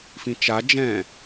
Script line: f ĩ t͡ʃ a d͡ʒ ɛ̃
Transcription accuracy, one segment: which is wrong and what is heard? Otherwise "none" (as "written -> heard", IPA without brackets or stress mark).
none